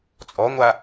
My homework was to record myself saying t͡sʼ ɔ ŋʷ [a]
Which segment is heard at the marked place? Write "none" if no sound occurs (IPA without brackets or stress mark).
a